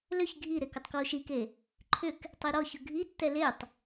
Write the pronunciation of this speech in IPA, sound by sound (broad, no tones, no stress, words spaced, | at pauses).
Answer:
lʏç ɡʱiɾek ətˤkwoʃike | ǃʰʏk | tˤiɾɔçʊ ɡʱitːɛ letˤ